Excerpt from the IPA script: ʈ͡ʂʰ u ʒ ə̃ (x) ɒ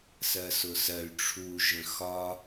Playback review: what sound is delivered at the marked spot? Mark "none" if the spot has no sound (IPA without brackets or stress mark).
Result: x